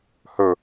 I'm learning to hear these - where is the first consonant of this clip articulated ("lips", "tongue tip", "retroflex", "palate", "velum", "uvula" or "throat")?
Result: throat